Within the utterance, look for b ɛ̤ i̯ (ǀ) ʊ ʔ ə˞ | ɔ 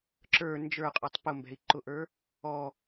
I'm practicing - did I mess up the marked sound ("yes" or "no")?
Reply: yes